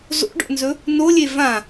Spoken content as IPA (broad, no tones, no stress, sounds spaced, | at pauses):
z o̰ ɖ o̰ n z ɵ | n o lʲ e v ã